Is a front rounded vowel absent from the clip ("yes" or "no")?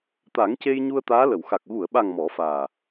yes